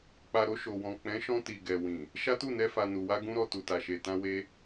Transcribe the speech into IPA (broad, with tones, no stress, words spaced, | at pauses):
k͡pa˨ɾo˧ ʃo˨wɔ̃˨ k͡pɛ̃˨˦ʃɔ̃˧ ti˨ɡɛ˨ wĩ˨ | ʃa˦tu˦˨nɛ˧ fa˨nu˨wa˧ ɡũ˦ɾɔ˧ tu˨ta˨ʃe˨tã˧ we˦